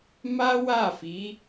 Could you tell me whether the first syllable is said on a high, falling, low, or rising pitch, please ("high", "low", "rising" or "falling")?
high